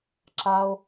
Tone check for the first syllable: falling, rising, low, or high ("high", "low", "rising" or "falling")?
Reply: high